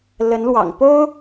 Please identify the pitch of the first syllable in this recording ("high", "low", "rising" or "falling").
rising